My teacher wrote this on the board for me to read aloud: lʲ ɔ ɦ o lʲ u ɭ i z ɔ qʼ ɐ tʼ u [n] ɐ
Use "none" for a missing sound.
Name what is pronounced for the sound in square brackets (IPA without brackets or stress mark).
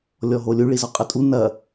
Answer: n